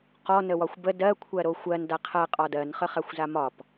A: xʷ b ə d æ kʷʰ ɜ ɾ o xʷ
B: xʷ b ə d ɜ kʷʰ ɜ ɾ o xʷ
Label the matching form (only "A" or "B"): B